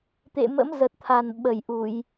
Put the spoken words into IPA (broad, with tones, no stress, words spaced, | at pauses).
t̪ḛ˧˨mə̰˧˥mzə˨˩t̚t̪ʰa˨˩n ɓə˧˩jʔu˧˩˨j